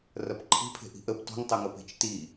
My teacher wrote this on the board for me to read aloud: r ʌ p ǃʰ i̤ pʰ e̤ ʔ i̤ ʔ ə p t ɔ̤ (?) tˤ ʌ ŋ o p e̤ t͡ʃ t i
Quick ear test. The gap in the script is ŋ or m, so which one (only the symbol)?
ŋ